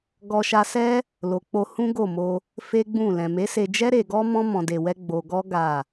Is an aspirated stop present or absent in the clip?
absent